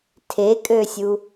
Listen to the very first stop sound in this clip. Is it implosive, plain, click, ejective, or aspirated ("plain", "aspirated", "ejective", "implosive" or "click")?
aspirated